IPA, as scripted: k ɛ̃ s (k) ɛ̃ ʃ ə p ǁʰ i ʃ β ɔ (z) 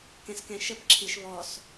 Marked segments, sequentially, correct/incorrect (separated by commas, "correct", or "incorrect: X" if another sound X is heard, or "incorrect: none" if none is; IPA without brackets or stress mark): correct, incorrect: s